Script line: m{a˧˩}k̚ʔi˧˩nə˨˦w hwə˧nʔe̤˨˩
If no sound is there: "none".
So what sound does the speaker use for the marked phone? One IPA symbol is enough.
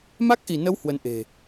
a˦˥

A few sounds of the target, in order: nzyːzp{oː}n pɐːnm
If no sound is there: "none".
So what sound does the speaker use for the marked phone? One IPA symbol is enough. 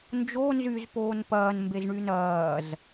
oː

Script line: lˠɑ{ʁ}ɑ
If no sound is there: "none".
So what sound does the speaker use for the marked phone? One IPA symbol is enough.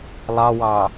w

